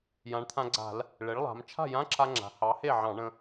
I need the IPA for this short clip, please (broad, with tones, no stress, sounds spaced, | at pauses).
j ã˩˧ ɳ t̪ʰ ã˧ ɡ͡ǀ a̤˧˩˧ l | ɭ e˩˥ ɭ lˠ a̤˩˧ m t͡ʃʰ a̤˥˩ j ã˧˥˧ ǁʰ a˧ ŋ͡ǁ a̤˩˧ h ɑ˩˥ h e˥˩ ʕ ɑ̃˧˩˧ ɳ ə̃˧